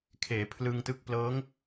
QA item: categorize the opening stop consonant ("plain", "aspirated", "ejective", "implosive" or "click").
aspirated